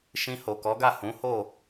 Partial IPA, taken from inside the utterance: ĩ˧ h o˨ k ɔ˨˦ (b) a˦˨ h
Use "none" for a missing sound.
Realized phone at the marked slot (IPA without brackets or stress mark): ɡ